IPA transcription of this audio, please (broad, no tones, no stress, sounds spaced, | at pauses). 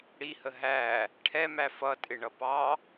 ɽ i h ə ɦ æ | ʈʰ ɛ m æ f ʌ tʼ ɪ ɳ ʌ p ɑ